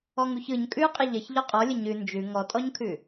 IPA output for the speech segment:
ɔ ŋ u ç ɯ ɲ kʼ ʉ qʼ ə ʎ ə ç ʎ ɔ qʼ ɔ lʲ ə ɲ ʉ n d͡ʒ ʉ ŋ ɔ tʼ ɔ ɲ kʰ ʉ

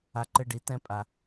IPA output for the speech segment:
a˨ ǃ ɘ˧ ɖ i˨ t ɛ̃˦ pʼ a˨

